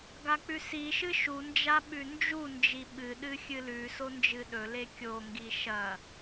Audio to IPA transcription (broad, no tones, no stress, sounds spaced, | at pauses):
ɡ a k͡p ʉ s i ʃ ɨ ʃ u n d͡ʒ a ɓ ʉ n d͡ʒ u n d͡ʒ i ɓ ɨ ɗ ɨ xʲ ɨ l ʉ s o n d͡ʒ ɨ ɗ ɵ l e kʲ o ŋ ɡ i ʃ ɐ